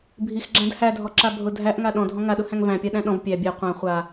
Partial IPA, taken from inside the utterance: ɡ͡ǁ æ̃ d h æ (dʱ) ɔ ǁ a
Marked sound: correct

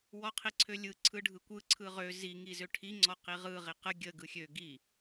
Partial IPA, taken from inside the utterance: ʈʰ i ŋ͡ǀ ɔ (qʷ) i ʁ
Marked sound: incorrect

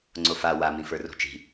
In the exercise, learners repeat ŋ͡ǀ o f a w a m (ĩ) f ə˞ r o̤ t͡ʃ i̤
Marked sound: correct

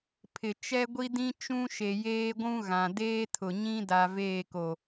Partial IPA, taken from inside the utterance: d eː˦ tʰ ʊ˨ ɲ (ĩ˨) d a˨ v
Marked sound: incorrect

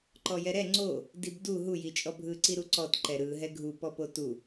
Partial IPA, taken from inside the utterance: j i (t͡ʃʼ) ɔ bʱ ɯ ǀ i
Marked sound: correct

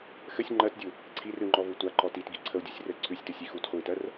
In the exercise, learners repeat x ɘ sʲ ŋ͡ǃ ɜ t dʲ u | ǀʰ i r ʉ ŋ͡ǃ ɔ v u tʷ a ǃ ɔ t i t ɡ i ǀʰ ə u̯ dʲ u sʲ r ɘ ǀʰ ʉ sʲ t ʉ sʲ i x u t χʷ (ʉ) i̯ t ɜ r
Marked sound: incorrect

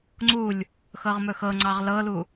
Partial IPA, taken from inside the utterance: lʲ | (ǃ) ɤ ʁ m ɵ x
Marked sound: incorrect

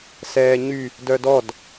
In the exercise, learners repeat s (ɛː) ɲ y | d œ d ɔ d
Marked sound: correct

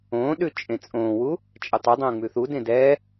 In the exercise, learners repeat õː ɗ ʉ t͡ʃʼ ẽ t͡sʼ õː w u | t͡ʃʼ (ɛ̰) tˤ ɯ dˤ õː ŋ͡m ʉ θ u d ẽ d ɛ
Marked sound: incorrect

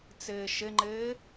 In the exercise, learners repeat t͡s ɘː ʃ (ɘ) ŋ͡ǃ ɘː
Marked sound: correct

